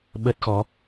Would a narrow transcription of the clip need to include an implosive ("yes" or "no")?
yes